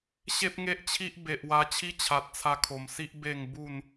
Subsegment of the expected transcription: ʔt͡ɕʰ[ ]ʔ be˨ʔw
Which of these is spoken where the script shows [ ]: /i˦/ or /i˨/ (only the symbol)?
i˦